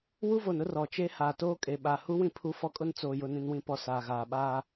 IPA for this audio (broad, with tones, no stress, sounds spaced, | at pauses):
w u˦ v o˨ n ʊ˦ r ɔ˨ t͡ʃ e˦ h aː˨ t oː˦ kʼ e˨ ɓ a˨ h u˦ w ĩ˦ pʰ u˦ f ɔ˦ kʼ ʊ˦ n t͡s oː˨ j ʊ˨ n ĩ˨ n w ĩ˨ p ɔ˨ s aː˨ ɣ aː˨ ɓ aː˦